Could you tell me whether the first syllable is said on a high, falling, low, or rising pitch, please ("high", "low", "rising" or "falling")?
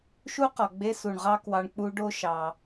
high